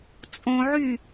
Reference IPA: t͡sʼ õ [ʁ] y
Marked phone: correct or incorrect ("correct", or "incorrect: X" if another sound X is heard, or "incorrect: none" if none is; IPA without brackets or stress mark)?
incorrect: ʕ